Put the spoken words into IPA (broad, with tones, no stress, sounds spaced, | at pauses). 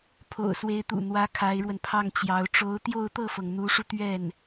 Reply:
pʰ o̰˨˩ ʊ̯ s w e˧˥ ɪ̯ t̪ ṵ˨˩ n̪ w ä˧˥ kʰ a˧˥ ɪ̯ ɻ w ə˧ n pʰ ɑ˥˩ ŋ t͡ɕ j ɑ˧˥ ʊ̯ ʈ͡ʂ o˧˥ ʊ̯ t̪ j o˥˧ ʊ̯ t̪ ɤ˥˩ f ɤ˩ ŋ n̪ u˧˥ ʂ u˧ t̪ ɥ ɛ˥˩ n